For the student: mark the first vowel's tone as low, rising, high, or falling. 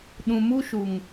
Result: low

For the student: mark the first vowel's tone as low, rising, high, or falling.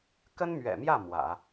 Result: high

